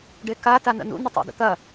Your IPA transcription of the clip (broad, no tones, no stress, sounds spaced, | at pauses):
ɖ e k a t a n ə̰ n ṵ n ə tˤ ḛ d ə̰ t̪ ɐ